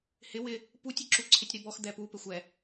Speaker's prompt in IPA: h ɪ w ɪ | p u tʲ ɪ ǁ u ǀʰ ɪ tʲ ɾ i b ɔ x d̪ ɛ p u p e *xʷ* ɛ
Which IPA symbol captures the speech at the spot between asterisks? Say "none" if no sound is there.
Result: xʷ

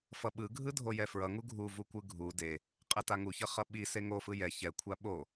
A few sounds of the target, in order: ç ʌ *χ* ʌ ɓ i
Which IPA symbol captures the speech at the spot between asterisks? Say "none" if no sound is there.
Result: χ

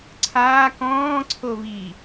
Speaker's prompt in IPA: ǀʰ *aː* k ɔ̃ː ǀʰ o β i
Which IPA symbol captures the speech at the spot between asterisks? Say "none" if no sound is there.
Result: aː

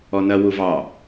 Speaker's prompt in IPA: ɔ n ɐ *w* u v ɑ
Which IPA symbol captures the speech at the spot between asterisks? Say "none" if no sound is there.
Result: w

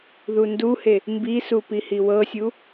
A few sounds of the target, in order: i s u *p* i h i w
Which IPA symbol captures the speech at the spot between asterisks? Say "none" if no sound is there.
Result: p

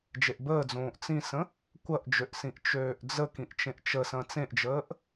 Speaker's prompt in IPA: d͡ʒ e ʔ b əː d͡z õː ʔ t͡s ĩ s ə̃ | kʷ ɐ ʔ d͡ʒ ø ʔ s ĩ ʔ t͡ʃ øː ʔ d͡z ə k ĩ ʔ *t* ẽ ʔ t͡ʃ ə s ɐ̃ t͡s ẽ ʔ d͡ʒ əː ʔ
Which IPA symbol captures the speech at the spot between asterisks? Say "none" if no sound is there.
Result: t͡ʃ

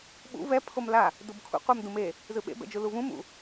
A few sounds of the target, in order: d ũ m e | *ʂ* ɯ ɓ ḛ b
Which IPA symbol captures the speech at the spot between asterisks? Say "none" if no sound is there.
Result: z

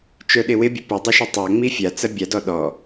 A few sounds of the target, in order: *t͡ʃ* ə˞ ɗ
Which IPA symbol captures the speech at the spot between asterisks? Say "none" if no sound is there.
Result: t͡ʃ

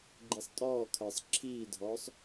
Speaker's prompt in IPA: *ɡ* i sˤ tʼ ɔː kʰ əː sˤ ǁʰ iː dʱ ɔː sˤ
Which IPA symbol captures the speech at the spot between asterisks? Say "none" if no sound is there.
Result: ɡ͡ǃ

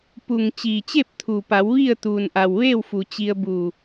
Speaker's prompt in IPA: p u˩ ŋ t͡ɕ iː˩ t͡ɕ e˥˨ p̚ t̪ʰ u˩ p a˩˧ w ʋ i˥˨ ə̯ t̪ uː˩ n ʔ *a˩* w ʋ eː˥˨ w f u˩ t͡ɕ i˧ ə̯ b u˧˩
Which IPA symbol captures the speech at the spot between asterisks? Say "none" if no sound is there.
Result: a˩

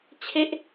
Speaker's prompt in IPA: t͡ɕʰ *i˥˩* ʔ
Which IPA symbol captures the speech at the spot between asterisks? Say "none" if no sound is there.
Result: e˥˩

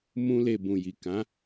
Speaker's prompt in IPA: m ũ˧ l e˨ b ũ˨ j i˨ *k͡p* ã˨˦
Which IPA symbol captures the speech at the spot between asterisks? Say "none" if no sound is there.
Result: k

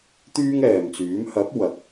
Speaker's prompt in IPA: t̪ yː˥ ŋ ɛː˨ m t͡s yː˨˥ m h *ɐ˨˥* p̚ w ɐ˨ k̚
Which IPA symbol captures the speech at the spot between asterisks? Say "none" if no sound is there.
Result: ɐ˨˥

